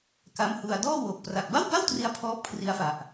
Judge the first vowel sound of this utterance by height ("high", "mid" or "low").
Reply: low